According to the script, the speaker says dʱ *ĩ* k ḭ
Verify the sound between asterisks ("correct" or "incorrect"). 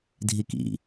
incorrect